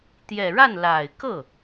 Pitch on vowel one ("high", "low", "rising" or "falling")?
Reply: low